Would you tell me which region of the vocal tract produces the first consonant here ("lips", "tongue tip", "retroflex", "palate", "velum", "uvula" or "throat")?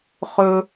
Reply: uvula